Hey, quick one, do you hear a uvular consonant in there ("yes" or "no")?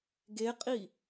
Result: yes